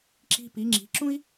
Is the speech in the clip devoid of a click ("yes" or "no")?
no